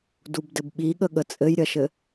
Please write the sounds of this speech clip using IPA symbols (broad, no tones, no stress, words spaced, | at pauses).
dubdɘbɓiɠə ɠət͡sʼɘjɾʲɐʃɘ